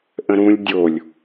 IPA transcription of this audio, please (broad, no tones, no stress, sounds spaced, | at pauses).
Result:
ʔ ə̃ ɾ ũ lʲ dʲ o lʲ